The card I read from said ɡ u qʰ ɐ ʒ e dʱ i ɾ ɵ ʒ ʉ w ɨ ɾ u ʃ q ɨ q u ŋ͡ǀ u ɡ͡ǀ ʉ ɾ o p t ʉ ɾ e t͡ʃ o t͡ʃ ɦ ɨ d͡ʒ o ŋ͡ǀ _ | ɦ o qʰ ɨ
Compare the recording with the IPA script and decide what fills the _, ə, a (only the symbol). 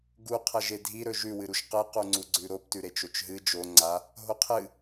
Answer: a